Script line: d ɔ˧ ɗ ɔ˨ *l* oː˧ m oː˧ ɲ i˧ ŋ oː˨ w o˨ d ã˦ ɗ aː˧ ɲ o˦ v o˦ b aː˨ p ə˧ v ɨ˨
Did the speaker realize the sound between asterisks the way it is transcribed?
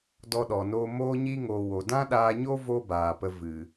no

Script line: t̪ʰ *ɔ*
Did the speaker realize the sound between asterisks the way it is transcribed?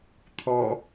yes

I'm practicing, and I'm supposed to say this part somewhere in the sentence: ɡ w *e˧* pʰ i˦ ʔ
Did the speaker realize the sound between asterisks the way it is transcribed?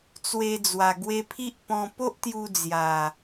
yes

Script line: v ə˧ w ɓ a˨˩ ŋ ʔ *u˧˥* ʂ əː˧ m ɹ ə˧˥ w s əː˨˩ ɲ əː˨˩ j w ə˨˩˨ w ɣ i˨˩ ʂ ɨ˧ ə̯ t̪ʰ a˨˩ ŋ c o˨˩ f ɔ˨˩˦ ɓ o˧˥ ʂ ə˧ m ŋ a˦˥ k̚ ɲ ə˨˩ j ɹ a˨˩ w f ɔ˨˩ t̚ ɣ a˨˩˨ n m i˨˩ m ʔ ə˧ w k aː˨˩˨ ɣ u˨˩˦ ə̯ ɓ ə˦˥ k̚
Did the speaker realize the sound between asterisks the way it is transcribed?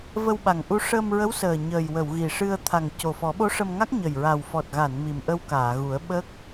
no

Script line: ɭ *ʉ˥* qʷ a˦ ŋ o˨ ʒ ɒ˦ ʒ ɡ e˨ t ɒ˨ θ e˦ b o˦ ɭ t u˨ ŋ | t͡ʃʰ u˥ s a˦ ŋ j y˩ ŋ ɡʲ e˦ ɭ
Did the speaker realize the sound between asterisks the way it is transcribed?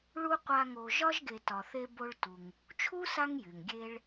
no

